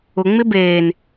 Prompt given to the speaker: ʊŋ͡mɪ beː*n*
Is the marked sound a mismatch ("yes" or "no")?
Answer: no